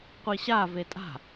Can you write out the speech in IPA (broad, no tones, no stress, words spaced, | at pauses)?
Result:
qʷiɕave tʼa̤